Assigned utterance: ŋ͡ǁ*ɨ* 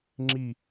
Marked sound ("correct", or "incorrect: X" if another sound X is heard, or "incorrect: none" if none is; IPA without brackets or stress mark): incorrect: i